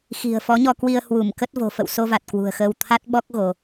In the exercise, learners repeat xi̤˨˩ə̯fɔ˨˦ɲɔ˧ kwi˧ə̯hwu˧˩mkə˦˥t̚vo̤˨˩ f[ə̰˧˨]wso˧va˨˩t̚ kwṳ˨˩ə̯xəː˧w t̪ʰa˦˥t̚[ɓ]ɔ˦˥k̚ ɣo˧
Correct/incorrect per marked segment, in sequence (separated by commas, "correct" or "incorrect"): correct, correct